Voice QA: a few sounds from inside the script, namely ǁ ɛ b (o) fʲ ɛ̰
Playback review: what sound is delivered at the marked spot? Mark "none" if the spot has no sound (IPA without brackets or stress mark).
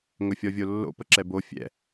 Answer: o